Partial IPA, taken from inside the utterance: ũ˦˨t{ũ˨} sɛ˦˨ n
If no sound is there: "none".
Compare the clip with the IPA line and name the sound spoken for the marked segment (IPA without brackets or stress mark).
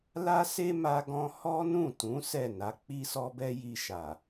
ũ˨˦